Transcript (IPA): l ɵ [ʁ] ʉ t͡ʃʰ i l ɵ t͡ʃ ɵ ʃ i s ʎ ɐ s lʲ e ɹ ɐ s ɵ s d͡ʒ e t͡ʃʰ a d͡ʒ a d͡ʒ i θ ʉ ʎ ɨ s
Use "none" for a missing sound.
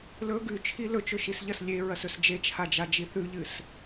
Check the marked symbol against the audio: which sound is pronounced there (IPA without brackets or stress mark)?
ɡ